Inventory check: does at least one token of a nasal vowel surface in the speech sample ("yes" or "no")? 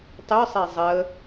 no